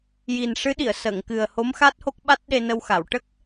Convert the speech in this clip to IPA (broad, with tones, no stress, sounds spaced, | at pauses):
j i˨˩ n ʂ ɨ˧˥ ɗ i˨˩˨ ə̯ s ə˨˩˨ ŋ k ɨ˨˩ ə̯ h o˧˥ m x a˦˥ t̚ h o˦˥ k̚ ɓ a˦˥ t̚ ɗ e˧ n ə˧ w x a˨˩˨ w ʈ ə˦˥ k̚